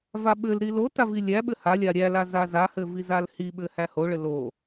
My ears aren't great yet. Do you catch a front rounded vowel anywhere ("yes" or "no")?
no